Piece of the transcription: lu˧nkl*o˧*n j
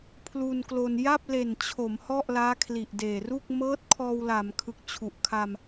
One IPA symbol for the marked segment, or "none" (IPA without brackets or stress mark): o˧